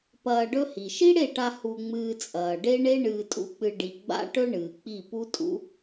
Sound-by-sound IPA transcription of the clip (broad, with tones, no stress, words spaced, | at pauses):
pɐː˧ɖɵ˦hi˨ ʃi˦ɽe˦˨ʈa˧ hu˧ŋ͡mɨː˧t͡sʼɐː˨ ɖe˦ ɳe˦ ɳɨː˧tʼṵ˦k͡pɨ˧ ɖi˨ɡ͡ba̰˦ ʈɵ˦ɳɨː˨ k͡pi˦˨ pu˦tʼṵ˦